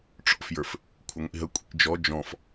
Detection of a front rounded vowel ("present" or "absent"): absent